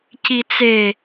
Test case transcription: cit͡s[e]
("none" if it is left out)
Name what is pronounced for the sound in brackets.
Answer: e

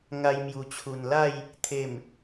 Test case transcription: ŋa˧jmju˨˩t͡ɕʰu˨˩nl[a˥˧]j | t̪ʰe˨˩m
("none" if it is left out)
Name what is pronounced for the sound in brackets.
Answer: a˥˧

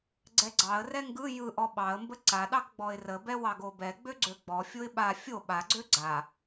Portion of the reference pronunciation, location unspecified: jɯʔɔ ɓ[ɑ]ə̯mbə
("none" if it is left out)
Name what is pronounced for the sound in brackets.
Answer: ɑ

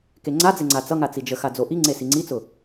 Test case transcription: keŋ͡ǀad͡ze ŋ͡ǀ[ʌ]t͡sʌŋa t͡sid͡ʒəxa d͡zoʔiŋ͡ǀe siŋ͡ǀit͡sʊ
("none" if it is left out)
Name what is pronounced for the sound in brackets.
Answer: a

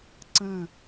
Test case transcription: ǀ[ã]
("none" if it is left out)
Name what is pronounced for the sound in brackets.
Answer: ə̃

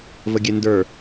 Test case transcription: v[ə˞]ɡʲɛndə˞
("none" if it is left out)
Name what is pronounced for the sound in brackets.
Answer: ə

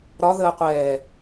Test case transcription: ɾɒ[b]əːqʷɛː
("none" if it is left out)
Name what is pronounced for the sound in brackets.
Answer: ð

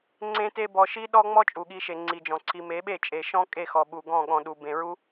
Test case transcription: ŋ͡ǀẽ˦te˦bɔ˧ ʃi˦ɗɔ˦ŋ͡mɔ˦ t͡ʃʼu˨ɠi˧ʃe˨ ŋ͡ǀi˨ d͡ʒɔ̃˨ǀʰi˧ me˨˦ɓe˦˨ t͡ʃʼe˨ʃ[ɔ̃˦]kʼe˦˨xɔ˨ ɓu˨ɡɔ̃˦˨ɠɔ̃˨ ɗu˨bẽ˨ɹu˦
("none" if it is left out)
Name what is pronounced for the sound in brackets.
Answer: ɔ̃˦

